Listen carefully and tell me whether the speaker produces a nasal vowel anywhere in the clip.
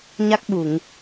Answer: no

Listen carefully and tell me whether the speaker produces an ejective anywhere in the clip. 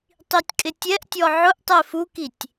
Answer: yes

